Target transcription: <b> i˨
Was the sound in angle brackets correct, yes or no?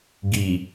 no